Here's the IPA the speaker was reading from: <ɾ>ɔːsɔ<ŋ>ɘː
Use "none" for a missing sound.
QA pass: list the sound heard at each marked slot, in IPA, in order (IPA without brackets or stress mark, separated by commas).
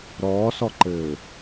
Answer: ɾ, ǃ